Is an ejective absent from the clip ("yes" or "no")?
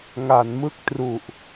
yes